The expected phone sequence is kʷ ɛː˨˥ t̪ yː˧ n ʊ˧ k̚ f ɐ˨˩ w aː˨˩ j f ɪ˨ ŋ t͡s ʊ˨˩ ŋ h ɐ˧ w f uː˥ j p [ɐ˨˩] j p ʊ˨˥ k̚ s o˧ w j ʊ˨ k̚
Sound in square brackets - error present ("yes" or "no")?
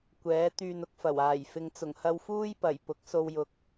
no